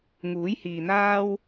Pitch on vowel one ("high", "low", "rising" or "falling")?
rising